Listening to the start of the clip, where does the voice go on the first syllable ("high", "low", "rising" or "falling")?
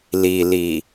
low